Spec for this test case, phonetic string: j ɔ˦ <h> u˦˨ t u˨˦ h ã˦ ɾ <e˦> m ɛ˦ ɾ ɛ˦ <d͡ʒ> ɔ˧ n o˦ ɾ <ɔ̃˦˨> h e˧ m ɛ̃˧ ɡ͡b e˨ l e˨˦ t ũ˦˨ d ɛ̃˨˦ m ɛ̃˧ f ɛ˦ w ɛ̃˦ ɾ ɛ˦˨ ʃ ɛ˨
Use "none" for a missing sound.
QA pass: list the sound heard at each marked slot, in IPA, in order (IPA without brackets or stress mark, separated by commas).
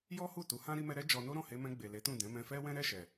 h, i˦, d͡ʒ, ɔ̃˦˨